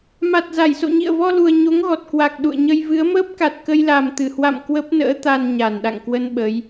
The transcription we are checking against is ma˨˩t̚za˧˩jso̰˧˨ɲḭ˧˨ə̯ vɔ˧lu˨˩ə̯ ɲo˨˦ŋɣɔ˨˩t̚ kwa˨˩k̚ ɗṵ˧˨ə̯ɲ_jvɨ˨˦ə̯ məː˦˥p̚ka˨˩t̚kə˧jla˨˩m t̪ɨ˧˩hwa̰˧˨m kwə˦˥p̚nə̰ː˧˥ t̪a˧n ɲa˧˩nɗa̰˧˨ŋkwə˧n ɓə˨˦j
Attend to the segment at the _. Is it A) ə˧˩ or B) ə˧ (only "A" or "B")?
B